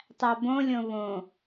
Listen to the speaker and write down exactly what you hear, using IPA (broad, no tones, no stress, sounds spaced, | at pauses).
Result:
tˤ æ b õ lʲ õ β õ